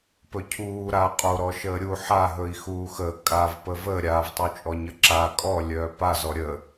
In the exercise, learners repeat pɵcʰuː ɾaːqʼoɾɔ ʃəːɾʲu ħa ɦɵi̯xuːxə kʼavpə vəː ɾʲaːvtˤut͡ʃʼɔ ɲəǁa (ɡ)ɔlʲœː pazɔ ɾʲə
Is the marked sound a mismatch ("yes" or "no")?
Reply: yes